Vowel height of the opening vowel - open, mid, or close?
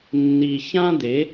close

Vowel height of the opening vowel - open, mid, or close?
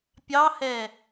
open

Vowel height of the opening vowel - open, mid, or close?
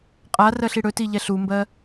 open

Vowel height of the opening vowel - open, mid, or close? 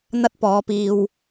open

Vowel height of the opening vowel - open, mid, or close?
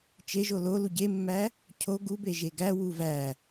mid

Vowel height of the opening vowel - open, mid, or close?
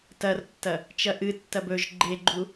open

